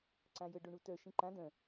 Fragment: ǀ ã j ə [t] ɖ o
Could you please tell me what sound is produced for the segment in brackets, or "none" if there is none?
none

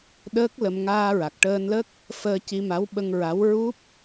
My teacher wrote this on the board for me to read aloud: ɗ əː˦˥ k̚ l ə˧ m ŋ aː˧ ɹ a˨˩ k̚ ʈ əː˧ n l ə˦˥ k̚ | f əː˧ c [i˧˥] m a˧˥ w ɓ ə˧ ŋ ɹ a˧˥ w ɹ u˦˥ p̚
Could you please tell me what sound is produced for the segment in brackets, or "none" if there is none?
i˧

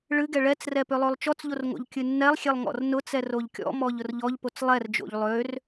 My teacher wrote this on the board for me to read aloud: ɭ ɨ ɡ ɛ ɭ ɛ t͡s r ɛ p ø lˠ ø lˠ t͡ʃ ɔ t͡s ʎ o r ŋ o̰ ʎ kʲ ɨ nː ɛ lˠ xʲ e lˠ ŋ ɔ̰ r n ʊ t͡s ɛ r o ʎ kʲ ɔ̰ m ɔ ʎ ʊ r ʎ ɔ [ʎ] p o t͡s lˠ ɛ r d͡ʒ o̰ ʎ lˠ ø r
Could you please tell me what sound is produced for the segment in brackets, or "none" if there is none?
ʎ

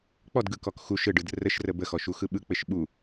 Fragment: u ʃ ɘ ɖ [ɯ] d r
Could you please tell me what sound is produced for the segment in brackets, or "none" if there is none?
ɯ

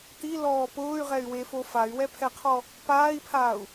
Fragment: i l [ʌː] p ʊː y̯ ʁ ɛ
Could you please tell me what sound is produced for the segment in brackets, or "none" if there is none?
ɔː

